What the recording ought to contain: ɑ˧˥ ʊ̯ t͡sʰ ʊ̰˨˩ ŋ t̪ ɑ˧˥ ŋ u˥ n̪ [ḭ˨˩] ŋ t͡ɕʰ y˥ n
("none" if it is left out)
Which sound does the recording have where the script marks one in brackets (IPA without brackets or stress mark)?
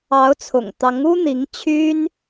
i˧˥